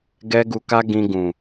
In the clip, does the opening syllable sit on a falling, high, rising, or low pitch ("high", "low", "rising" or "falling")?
high